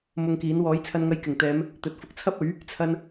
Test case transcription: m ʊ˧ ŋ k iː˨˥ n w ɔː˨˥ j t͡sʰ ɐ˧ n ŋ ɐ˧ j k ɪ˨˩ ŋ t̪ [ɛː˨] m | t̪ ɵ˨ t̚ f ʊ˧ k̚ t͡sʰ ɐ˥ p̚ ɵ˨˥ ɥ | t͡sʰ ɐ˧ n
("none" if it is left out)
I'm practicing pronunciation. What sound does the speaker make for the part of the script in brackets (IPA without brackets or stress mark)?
ɛː˨˧